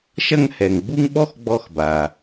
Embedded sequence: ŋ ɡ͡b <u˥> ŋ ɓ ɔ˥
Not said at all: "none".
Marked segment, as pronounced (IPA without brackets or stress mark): u˥